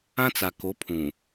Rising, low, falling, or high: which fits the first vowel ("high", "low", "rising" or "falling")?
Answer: high